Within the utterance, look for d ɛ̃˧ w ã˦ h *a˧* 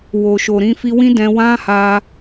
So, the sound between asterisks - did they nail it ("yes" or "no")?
yes